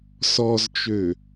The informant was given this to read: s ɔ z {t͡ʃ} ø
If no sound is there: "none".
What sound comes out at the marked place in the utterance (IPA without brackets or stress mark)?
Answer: t͡ʃ